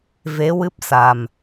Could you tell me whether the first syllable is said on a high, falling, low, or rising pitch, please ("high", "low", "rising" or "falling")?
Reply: rising